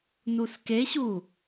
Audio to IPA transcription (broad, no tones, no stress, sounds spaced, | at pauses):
n u s k e ɕ u